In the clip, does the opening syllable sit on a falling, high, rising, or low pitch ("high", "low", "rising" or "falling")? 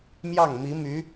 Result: falling